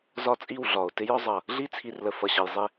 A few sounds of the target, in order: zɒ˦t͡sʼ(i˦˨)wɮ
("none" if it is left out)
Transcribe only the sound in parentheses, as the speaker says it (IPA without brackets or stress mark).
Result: i˦˨